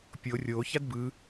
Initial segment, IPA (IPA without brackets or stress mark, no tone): pʲ